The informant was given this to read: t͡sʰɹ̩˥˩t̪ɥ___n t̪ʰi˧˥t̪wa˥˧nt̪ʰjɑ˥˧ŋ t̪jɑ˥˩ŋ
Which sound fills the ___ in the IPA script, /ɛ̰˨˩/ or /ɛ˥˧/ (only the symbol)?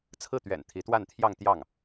ɛ̰˨˩